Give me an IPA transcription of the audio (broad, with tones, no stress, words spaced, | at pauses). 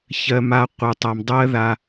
çɜ˧ ma˧ qʷɯ˨tˤa˧m dˤɜ˦ ða˧